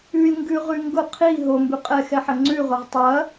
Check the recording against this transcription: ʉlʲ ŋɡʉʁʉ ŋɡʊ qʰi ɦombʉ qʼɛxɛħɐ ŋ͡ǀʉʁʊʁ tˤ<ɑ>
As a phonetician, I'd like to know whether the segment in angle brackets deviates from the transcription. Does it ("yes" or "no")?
yes